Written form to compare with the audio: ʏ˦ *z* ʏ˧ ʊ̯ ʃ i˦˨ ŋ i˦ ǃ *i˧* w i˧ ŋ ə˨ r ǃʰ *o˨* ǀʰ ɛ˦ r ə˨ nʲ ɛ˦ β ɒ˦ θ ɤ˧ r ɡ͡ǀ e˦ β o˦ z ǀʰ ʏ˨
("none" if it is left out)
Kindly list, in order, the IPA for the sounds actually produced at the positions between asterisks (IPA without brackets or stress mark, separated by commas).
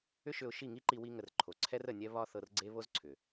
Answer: ʃ, i˧, o˨